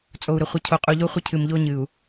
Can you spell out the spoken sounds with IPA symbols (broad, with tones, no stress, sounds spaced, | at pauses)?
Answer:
t͡sʼ o˨ u̯ ɾ ə˨ χʷ ə˨ cʰ o˨ qʼ u˨ ʎ o˦ χʷ ə˦ cʰ ɨ˨ m ʎ o˦ ɲ ɨ˨ u̯